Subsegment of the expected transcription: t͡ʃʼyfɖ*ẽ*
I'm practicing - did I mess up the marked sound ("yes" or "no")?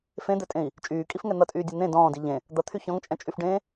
yes